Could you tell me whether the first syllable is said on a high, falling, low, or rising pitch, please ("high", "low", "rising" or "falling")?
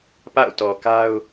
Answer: falling